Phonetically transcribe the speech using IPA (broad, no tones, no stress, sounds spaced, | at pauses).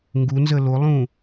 ŋ ɡ u n z ə l o lˠ ũ